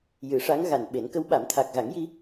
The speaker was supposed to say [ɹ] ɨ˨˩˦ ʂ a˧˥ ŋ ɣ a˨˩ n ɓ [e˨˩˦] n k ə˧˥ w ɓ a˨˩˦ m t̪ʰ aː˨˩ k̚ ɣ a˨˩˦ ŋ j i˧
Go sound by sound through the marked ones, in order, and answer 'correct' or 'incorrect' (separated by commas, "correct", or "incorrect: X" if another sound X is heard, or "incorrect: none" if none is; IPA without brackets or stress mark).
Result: incorrect: j, correct